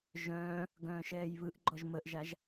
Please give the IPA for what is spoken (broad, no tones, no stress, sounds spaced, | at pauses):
ʒ œ̃ː | ɡ œ̃ː ʃ ɛː j β ɯ ʔ ɡ͡ǃ ɔ ʒ m ə ʔ ʒ a ʒ